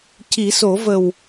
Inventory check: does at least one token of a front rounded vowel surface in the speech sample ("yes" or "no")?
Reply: no